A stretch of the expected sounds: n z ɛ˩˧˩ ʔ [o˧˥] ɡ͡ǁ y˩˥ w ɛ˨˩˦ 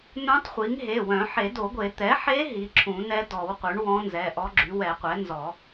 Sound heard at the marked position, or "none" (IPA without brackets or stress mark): ɔ˧˥